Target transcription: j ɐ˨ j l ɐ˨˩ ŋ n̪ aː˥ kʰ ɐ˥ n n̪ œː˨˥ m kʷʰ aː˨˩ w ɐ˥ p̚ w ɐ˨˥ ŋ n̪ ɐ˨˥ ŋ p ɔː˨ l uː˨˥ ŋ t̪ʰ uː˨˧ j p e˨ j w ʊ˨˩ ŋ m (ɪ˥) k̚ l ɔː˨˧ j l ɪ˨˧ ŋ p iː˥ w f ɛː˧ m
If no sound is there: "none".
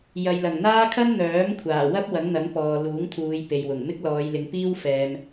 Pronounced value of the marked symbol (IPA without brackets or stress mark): ɪ˥